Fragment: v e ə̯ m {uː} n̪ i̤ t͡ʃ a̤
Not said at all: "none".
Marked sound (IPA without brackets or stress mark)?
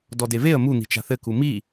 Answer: u